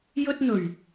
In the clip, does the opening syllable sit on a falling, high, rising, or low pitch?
high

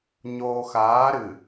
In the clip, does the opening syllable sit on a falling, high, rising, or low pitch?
low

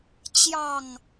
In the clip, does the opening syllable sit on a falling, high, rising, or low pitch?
low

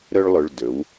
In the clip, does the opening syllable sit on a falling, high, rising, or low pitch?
high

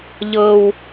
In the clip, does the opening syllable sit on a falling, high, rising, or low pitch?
high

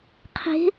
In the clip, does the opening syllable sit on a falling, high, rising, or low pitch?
rising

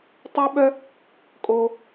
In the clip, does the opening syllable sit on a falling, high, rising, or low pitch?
high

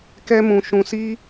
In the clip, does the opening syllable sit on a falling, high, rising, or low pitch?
high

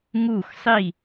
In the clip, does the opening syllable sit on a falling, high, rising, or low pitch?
falling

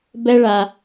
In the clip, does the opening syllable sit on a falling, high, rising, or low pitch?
high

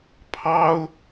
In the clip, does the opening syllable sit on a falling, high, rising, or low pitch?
high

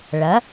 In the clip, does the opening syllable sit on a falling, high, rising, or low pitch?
rising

